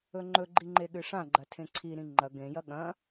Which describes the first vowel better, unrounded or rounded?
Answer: rounded